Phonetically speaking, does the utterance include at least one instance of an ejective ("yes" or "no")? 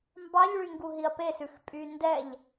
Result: yes